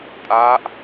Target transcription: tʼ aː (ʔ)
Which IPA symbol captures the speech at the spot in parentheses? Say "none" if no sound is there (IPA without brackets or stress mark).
ʔ